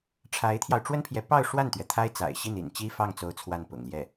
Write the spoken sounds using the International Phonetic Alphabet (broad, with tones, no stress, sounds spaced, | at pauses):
ʈ͡ʂʰ a˧˥ ɪ̯ t̪ʰ j ɑ˧ ʊ̯ ʈ͡ʂ w ə˥ n pʰ j ɛ˧˥ p ɑ˥˧ ʊ̯ ʂ w a˥˩ n t̪ ɥ ɛ˩ t̪ʰ a˥ ɪ̯ t͡s a̰˨˩ ɪ̯ ɕ i˥˩ n ḭ˨˩ n t͡ɕ i˥ f ɑ˥˩ ŋ t͡s o˧˥ ʊ̯ t͡sʰ w a˥˩ n p ʊ̰˨˩ ŋ l j ɛ˥˩